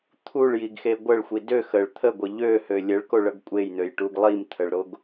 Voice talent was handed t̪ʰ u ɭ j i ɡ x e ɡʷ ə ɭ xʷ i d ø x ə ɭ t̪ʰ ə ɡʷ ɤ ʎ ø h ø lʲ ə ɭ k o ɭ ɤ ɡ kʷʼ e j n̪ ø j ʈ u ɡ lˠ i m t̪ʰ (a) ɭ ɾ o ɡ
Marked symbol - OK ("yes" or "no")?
no